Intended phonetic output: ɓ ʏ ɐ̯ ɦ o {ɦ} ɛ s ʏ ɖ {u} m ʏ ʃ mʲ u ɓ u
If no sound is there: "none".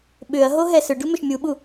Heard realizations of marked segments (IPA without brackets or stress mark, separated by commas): ɦ, u